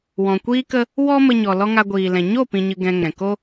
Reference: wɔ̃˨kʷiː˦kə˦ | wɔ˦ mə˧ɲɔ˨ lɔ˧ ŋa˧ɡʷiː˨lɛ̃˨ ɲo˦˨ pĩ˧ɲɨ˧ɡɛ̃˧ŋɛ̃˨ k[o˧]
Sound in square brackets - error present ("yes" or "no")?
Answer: yes